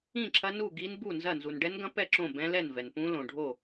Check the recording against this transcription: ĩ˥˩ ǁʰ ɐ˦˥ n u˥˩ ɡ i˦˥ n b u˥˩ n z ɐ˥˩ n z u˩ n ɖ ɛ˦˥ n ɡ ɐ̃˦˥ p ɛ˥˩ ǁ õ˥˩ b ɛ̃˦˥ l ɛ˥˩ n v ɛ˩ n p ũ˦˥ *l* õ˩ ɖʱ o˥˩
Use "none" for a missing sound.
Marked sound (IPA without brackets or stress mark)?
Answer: l